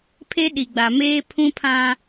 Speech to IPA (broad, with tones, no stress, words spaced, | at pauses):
pʰe˦ɗi˨ ɡ͡ba˨meː˦pʰũ˦pʰã˦